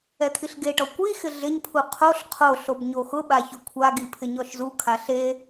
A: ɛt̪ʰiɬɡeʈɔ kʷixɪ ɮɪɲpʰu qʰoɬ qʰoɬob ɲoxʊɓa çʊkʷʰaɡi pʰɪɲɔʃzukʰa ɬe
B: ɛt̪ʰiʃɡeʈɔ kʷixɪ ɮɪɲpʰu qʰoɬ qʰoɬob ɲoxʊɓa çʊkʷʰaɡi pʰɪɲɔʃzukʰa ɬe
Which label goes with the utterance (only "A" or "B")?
A